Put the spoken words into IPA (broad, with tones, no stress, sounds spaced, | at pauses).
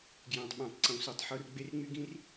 ɡ j æ̃˨ tˤ ɓ æ̃˨ tˤ ǀ õ˨ s u˨ tˤ ħ o˦ r ɡ͡b e˧ r ŋ͡m y˧ ɡ ĩ˧ r